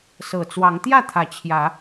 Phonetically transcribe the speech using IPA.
sɤ˨˩t͡swɑ˨˦ŋ t̪jä˥˨t̪ʰä˨˩ t͡ɕʰjä˨˦

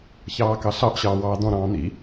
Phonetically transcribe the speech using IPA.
çɑːkɑɬɑʔ ɕɑːwɑːdɔ̃ ɾɑ̃ːn̪ḭ

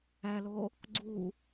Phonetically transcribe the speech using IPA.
ælo | ɡ͡ǀu

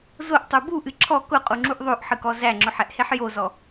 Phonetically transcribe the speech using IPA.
zoʔtˤu buʔɨ ǁʰɔ kʊqʼuŋ͡ǁuʔ ðˤoʔħɨkɔ zæŋ͡ǁʊħɛʔheħ jozɔ

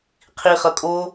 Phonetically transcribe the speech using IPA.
qʰiχʌ kʼo

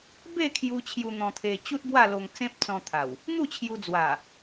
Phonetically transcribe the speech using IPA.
be˥˧kʰju˧ t͡ɕʰju˧n̪ɔ̃˧t̪ʰe˧ t͡ɕu˦t̚bwa˥˧lo˧ŋ t͡sẽ˦p̚t͡sɔ̃˧t̪ʰa˨˩w | n̪u˥˧t͡ɕʰju˧d͡zwa˨˩

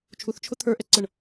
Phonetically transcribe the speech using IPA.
t͡ʃʰuθt͡ʃʰʊ t̪ʰə˞ʔɛǀɤɳ

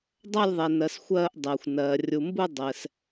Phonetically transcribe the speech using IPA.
dˤa˦˨lʲðˤɛ˩nɜ˩s xʷɜː˦˨ʔdˤɛː˩xʷnɜː˩ rʲu˩mbu˦˨ dˤɛ˩s

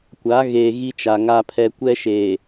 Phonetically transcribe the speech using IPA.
kʷa˨˦ɣeː˨ ɣi˦t͡ʃa˨ŋa˦pʰɛ˦ kʷɛ˦ʃeː˨

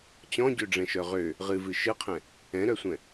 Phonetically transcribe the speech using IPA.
t͡ɕɔ̃ɟøɖ͡ʐɛ̃ʃœ ʁø | ʁɨvɨ ʃɨqʰɛ̃ | ɛ̃ɾœsʷɛ̃

